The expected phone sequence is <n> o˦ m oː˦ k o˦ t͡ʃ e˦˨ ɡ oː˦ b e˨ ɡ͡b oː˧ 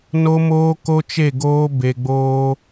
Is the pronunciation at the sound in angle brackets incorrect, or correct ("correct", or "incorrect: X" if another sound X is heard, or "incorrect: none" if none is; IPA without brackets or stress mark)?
correct